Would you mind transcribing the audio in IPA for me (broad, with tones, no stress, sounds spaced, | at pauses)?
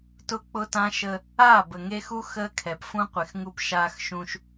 t ʊ˦ k͡p ʊ˦ t ã˦ ʃ ə˦ | aː˦˨ b ə˨ ŋ e˦ x u˦ x əː˦ kʰ ɛ˨ p f ũ˦ qʷ e˨ x ŋ u˦ p ʃ aː˦ x ʃ ũ˦ ʃ